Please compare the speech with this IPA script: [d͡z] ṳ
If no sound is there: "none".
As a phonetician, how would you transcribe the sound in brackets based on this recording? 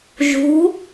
ʒ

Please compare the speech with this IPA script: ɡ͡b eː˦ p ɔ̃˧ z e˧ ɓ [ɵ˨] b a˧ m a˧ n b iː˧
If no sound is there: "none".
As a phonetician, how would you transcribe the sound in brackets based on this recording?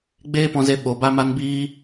o˨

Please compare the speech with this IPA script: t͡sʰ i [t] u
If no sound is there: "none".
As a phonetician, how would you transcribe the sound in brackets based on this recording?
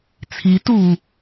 t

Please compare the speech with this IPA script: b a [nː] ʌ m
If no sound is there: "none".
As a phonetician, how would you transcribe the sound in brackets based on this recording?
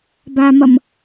m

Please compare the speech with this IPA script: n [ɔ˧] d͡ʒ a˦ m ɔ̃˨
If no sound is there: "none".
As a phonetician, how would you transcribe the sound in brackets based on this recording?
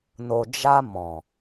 o˧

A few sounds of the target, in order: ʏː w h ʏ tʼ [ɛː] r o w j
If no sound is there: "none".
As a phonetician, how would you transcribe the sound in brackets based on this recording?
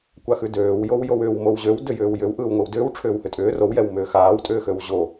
ʏː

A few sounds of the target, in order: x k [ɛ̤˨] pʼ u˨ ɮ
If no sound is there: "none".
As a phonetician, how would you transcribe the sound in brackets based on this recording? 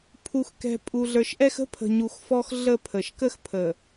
ɛ̤˨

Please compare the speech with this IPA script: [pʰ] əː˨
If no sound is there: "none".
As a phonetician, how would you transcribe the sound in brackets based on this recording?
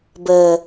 b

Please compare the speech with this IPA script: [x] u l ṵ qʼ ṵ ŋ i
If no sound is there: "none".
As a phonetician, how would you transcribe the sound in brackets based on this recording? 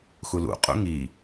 x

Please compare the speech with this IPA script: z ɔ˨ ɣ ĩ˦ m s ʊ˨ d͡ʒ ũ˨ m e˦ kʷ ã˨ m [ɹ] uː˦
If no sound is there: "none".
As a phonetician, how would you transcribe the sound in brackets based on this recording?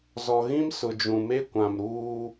ɾ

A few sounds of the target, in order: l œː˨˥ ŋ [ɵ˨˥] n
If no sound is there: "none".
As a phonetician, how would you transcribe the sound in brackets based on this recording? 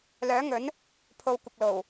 ɵ˨˥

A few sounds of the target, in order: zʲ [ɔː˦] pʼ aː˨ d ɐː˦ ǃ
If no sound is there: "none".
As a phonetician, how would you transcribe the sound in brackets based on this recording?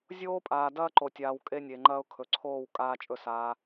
oː˦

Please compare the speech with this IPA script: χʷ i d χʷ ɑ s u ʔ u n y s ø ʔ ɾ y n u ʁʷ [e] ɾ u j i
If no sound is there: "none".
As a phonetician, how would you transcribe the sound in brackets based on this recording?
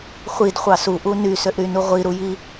i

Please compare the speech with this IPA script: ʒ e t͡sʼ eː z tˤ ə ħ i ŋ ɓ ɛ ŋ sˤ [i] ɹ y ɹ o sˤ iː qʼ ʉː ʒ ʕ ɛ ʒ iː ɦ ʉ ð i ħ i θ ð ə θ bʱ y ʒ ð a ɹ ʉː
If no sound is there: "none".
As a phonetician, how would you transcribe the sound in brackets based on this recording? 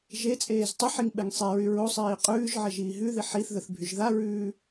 e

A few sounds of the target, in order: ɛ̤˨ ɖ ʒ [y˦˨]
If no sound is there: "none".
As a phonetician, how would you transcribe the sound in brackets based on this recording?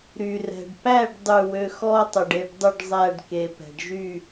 y˦˨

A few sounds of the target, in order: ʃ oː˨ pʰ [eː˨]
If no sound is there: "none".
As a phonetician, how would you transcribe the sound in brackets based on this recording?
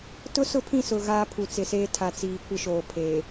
eː˨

